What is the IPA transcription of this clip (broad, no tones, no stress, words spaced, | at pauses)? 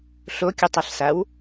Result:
ɬokʲutˤʌɬsaw